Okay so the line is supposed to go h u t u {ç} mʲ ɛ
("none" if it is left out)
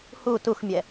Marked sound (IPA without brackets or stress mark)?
x